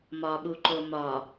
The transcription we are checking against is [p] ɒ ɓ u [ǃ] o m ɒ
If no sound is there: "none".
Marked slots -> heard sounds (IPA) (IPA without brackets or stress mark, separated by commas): m, ǃ